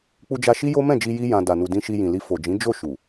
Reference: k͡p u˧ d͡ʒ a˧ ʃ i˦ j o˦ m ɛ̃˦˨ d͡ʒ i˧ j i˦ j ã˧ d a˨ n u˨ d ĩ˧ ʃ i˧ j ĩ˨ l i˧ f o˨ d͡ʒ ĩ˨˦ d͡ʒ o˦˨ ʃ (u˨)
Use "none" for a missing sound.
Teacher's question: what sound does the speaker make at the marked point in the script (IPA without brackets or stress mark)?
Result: u˨